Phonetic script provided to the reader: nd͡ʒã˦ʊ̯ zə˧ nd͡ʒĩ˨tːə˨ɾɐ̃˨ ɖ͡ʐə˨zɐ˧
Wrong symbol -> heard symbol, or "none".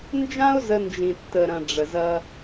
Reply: none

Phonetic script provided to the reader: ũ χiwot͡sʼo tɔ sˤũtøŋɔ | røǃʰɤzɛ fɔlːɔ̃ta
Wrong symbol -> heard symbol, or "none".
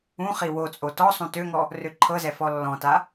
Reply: none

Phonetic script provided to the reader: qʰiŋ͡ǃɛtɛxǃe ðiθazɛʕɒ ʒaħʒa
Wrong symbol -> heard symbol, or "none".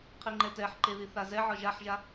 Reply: x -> ħ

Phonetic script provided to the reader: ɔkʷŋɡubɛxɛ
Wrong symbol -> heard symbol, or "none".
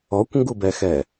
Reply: none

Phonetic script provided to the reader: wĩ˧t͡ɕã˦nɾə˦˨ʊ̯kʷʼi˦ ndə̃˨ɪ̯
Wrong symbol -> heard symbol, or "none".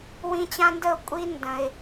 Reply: ɾ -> d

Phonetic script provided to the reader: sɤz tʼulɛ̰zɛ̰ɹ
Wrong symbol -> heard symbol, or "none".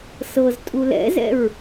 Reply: none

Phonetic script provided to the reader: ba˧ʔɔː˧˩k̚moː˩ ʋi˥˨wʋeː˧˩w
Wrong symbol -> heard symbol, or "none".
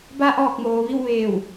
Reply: none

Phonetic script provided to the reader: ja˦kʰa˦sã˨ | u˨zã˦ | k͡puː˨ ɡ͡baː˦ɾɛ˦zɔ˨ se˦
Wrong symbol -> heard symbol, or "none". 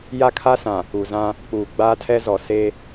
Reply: ɾ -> tʰ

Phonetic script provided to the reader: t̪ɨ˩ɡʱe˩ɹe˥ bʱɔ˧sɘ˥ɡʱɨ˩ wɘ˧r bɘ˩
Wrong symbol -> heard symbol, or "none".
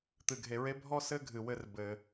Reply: ɔ˧ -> ɔ˥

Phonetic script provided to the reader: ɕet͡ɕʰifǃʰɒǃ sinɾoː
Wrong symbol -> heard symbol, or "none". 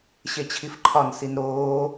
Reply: ǃ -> n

